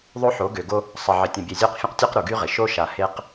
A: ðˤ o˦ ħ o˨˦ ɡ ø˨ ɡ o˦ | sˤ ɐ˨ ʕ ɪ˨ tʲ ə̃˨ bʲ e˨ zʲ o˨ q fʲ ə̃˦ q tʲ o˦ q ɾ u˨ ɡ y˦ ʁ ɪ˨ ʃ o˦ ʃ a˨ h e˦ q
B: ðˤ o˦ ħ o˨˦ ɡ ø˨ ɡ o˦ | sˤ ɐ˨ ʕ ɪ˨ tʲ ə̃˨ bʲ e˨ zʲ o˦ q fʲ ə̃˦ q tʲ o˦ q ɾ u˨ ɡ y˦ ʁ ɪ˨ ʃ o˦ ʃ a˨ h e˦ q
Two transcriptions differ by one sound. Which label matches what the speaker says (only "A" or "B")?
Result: B